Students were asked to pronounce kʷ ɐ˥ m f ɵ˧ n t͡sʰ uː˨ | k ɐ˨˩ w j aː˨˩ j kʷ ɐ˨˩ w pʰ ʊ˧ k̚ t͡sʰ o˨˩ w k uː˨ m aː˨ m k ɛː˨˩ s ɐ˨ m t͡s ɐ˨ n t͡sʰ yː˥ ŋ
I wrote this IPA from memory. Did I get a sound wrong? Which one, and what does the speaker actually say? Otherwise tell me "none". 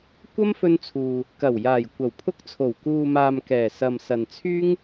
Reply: t͡s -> s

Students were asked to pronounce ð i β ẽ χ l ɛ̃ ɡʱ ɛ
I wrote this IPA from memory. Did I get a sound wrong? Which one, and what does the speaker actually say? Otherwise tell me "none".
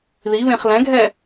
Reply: none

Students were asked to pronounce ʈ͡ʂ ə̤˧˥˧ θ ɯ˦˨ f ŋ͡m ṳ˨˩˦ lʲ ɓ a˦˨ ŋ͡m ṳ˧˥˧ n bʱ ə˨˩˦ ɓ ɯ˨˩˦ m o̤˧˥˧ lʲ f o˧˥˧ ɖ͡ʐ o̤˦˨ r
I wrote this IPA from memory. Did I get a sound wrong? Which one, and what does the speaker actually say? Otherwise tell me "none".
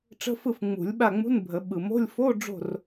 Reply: θ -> f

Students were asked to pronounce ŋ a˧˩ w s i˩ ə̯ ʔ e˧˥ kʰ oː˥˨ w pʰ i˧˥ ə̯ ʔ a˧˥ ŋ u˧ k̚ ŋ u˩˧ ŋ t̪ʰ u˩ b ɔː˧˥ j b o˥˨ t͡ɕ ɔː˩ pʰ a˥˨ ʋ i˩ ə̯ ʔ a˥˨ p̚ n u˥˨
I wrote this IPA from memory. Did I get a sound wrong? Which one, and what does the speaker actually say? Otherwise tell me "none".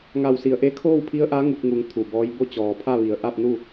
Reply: none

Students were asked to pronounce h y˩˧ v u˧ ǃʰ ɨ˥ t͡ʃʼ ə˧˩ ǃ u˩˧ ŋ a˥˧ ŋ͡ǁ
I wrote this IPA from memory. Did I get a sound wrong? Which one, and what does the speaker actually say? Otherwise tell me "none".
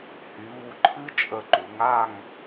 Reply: ŋ͡ǁ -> ŋ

